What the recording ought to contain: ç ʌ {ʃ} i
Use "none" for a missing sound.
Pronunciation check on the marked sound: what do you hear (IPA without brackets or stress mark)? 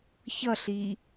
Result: ɬ